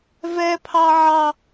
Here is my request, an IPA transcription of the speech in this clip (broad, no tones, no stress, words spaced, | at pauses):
vɛpʰɑ ʕɑ